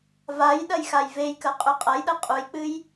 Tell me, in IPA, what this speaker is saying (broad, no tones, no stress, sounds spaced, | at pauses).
v a j ɗ ɐ j x a j v e j k ɐ qʼ ʉ qʼ ɐ j ɗ ɐ qʼ u j k͡p ɨ j